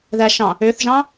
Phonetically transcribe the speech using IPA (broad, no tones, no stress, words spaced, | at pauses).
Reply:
ðæʃɑ̃ | øθʒɑ̃